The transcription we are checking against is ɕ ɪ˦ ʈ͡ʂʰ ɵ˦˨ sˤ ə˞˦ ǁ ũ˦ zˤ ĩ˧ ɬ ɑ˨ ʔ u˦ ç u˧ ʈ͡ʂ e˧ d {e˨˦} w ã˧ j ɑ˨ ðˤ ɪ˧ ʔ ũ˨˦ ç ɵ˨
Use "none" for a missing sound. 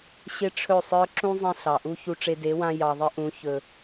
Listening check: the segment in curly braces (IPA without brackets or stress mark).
e˨˦